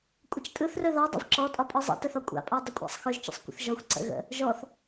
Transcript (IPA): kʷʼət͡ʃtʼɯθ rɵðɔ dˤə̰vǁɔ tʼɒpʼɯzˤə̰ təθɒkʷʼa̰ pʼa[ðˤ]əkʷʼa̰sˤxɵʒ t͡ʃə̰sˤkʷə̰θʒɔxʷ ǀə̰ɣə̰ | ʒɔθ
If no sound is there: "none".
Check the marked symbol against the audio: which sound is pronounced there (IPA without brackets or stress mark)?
dˤ